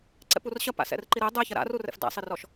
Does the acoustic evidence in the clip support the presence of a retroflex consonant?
no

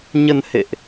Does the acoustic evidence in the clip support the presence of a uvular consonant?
no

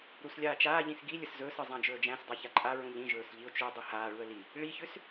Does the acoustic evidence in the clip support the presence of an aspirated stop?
no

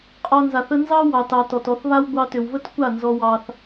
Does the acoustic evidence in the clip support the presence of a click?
no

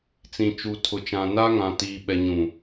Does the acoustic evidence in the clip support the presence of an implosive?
yes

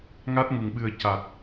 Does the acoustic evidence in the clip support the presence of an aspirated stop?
no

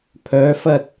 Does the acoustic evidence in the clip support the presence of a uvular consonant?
no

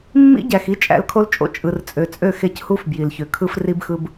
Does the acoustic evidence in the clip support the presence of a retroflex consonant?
no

